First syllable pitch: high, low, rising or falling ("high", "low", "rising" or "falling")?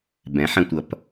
rising